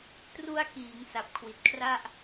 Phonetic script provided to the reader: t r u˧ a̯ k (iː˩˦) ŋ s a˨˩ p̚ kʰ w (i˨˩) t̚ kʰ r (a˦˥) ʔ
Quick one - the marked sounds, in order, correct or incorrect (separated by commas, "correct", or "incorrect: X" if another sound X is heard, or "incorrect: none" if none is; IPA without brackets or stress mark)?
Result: correct, correct, incorrect: a˥˩